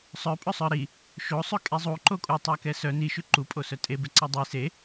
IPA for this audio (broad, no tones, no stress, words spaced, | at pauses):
sˤœpʼɵsˤœ ɾi | ʃosˤʉ kʼizˤuǃo kʼutˤœ kɛsœ niʃʉ ǃupʼo sœtʼebɛ ǀɛdˤi se